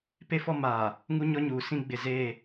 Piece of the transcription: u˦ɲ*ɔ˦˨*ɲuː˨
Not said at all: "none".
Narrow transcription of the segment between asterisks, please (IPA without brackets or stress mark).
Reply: ɔ˦